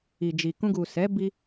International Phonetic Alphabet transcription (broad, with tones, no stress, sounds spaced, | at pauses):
i˨ d͡ʒ i˨ k ũ˧ ɡ u˨ s ɛ˨˦ b i˧